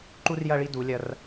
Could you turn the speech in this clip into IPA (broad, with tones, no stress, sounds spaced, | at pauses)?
ǃ u˥ r j ɐ˥˧ ɭ i˥˧ d u˩˧ lʲ ɐ˧ r